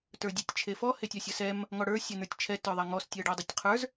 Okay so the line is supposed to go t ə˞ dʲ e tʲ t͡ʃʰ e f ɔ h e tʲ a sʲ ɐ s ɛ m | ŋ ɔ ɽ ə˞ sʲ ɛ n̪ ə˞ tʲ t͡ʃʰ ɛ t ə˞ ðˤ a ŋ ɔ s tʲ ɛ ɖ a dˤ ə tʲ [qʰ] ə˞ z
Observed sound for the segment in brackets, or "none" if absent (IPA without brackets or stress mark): qʰ